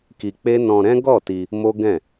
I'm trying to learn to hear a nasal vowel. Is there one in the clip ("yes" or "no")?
yes